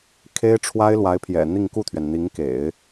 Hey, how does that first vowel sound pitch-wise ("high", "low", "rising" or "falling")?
high